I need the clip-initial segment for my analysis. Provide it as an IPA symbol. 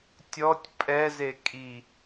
tʲ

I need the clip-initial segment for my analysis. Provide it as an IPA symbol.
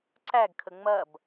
ǀ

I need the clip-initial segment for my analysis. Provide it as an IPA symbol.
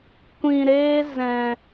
kʷ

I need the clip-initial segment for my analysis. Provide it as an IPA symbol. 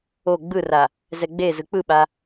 o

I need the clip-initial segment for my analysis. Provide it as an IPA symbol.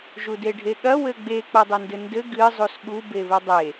ʒ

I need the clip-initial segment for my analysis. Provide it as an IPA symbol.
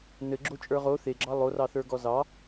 n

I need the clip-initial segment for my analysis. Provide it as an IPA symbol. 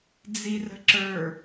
d͡z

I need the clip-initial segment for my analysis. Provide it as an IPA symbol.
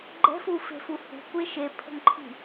ɡ͡ǃ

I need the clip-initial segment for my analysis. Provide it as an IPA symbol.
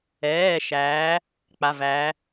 ɛː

